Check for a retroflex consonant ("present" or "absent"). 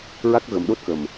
absent